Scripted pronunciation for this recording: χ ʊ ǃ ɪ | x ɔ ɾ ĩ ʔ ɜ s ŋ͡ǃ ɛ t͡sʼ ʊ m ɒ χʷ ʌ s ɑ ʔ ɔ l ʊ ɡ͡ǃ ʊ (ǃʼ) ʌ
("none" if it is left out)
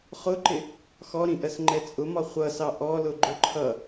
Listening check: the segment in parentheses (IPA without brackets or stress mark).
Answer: ǃʰ